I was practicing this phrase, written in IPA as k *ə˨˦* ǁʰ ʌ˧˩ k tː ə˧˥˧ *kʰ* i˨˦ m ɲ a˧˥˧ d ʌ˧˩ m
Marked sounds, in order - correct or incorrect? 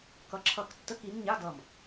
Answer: incorrect: ʌ˨˦, incorrect: k

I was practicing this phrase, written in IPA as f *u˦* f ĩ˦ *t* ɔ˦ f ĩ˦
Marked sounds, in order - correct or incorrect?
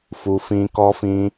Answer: correct, incorrect: k

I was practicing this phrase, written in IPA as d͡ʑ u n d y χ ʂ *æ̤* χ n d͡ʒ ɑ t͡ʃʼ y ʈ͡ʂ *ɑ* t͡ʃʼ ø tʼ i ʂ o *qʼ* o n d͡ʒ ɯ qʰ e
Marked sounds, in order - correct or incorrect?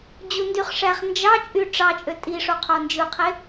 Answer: incorrect: æ, correct, incorrect: qʰ

